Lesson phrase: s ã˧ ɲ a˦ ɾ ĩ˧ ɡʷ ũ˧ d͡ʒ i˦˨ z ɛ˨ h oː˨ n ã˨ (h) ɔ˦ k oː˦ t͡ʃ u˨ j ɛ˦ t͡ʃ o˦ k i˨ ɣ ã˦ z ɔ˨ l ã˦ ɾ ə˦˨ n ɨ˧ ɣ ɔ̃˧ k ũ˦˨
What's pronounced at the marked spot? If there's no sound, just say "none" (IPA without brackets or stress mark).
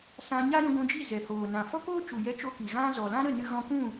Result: f